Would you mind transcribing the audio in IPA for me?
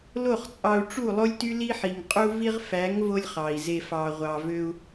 l o˦˨ χ t͡sʼ ɑ˧ u̯ ʈ͡ʂ u˦˨ lˠ o˦ lʲ t y˦ l i˦ ħ i˨ ŋ qʼ u˧ v i˧ ʁ f æ˨˦ ŋ v o˧ lʲ χ ɑ˨ i̯ z e˧ f ɑ˨ ʁʷ ɑ˨ v ø˧ u̯

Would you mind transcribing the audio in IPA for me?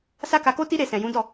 s a˦ k a˧ k o˦ t i˦ ɾ e˦˨ s ɛ̃˨ j ũ˨˦ d ɔ˦˨

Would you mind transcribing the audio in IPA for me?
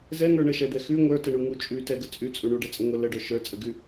z ɛ ŋ ə˞ ɳ ə ʃ ɛ d̪ ɛ x ʉ ŋʷ ə˞ t ə ɳ u ŋ u t͡ʃʼ ʉ t ɛ ɡ ə t͡sʼ ʉ t͡sʼ u ɳ u ɖ ɛ t͡sʼ ə ŋʷ ə l ə ɖ œ ʃ ə˞ t͡sʼ ə ɡ ʉ

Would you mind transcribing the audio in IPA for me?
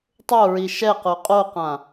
tˤ o ɹ i ʃ ɛ q o qʼ o q ã

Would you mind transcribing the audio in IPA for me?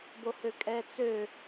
b o h ø kʼ ɛ t͡s ø

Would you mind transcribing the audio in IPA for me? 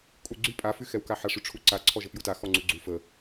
kʼ u ɡ͡ǀ y pʼ a f y x ɛ w k a ħ a ʂ y ʈ͡ʂʰ u ǀ a ǀʰ ɔ ʒ ə p j u t a x ɔ ŋ͡ǀ u ɡ͡ǀ u f ə

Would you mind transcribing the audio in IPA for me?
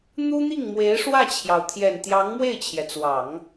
n̪ u˥ n̪ i˥˩ ŋ m w e˧˥ ɪ̯ ʂ w ä˥˩ t͡ɕʰ j ɑ˩ ʊ̯ t̪ʰ j ɛ˨˩ n t̪ j ɑ˧˥ ŋ m w e˥˩ ɪ̯ t͡ɕʰ j ɛ˩ t͡s w ɑ˨˩˦ ŋ

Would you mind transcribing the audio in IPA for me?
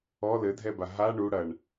ɔ l ɘ dʱ ɛ b a ɦ a ɳ u ɽ ɐ ɳ

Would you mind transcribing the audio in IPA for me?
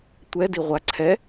tʷ ɛ d i ʁʷ a ǀʰ ɛ

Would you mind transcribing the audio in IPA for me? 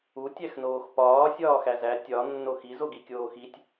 u tʲ æ x n oː x p ɒː sʲ ɒː x æ z æ tʲ ɒ nː o x i z o ɡ i kʲ oː x i tʲ

